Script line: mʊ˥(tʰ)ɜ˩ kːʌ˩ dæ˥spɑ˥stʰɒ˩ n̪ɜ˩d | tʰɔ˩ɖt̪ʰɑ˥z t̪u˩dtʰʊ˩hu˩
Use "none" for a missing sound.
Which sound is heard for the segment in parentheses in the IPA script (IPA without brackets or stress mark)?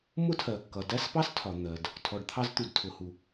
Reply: tʰ